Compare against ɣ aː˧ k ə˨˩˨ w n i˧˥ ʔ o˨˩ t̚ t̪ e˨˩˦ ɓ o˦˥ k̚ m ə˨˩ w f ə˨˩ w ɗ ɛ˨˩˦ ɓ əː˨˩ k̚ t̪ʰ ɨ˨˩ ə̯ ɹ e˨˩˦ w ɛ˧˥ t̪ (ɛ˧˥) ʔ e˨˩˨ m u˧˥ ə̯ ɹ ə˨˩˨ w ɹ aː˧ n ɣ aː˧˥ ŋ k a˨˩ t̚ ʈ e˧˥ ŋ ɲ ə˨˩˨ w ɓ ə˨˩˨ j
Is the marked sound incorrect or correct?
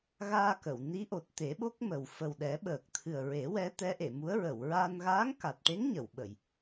correct